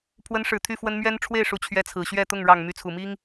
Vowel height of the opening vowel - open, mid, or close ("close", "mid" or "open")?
mid